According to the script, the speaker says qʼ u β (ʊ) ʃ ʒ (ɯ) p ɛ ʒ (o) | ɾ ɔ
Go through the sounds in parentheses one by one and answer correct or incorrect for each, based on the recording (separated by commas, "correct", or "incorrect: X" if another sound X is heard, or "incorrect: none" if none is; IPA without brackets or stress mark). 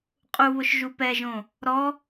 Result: correct, incorrect: u, incorrect: õ